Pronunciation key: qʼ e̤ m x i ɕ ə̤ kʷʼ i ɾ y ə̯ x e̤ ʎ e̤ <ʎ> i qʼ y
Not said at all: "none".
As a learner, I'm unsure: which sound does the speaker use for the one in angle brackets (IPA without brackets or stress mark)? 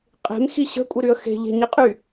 ɲ